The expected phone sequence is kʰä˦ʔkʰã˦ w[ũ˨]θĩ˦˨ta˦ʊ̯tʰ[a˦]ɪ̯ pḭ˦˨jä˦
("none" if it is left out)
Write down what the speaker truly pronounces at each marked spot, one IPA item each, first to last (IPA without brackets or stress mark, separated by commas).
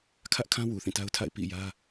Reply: u˨, a̰˦˨